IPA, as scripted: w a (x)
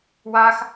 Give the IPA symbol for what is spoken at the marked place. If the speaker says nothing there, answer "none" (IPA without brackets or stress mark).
x